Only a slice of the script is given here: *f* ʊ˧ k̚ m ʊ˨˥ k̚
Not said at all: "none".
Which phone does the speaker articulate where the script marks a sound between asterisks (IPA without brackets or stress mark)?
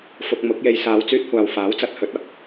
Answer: f